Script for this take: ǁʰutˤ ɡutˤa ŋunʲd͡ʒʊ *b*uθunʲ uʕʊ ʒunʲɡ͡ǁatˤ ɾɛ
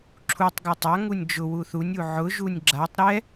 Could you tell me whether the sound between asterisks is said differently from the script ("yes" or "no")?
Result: yes